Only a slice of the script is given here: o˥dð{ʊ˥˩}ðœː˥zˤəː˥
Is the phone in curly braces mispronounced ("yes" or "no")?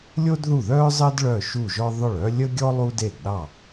yes